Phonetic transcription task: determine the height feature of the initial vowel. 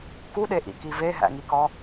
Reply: high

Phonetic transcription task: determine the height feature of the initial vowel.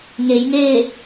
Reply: mid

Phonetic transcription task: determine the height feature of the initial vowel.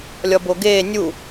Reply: low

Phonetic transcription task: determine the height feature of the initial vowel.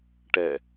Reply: mid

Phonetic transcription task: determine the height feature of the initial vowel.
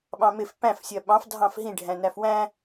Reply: low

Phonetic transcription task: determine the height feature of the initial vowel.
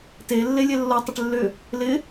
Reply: mid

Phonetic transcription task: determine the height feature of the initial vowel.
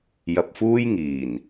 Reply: low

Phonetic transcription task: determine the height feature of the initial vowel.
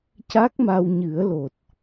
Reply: low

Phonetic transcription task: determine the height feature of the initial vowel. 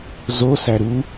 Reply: mid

